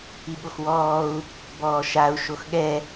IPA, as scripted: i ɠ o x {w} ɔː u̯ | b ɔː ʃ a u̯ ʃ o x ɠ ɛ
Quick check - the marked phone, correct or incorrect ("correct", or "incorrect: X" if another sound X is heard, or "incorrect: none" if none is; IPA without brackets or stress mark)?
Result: correct